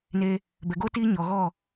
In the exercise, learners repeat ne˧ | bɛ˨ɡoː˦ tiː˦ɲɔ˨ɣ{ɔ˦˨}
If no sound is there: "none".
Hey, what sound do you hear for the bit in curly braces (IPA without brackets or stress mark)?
ɔ˦˨